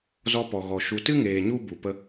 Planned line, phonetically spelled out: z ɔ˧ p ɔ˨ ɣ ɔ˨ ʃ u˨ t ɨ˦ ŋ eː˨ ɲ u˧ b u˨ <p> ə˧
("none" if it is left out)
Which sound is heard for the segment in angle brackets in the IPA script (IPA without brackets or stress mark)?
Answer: p